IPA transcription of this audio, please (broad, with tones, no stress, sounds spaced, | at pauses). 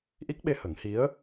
ʔ i˦˥ k̚ ɓ e˧ h ə˨˩˦ ŋ h i˧˥ ə̯